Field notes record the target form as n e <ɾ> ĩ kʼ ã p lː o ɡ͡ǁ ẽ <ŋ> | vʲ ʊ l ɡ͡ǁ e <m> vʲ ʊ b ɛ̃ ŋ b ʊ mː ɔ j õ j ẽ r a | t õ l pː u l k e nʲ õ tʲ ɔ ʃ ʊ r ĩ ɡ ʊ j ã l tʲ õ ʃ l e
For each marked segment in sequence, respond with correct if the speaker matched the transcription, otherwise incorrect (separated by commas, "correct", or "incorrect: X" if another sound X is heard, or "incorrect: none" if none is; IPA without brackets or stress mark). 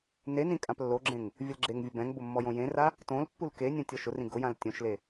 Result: incorrect: n, correct, incorrect: ŋ